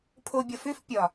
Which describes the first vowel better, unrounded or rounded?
rounded